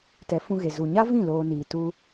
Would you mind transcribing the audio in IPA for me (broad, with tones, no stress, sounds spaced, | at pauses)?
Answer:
t ɛ˨˦ f ũ˧ ɣ e˨ z u˨ ɲ a˦ v ĩ˦˨ l oː˧ n iː˨ t u˧